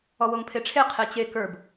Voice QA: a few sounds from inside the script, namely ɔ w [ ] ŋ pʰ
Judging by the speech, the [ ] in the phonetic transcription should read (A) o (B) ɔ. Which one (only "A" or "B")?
A